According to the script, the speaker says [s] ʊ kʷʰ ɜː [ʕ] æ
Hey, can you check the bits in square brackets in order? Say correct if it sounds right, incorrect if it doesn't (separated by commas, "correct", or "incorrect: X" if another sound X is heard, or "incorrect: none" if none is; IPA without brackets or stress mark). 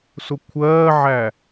correct, correct